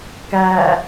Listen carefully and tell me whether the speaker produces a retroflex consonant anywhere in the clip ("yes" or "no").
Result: no